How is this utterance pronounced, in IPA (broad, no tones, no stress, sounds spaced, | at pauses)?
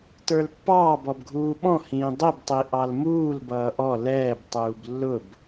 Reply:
t ə˞ l pː ɑː b ɔ b ɡʱ uː ɓ ɔ̃ h ĩː dˤ i b tˤ i ʔ ɑ l m uː l b ʌː ʔ ɔ l ɛː b tˤ uː b lː ʊ b